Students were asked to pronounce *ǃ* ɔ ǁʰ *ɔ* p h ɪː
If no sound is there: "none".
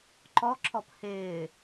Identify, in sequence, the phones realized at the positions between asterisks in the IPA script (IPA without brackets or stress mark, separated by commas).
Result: ǃ, ɔ